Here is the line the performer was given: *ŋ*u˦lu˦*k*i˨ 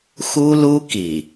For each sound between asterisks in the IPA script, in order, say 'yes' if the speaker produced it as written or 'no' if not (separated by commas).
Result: no, yes